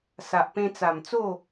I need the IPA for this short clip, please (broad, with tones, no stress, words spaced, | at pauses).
sa˨ʔpẽ˧t͡sa˨˩mt͡so˥˧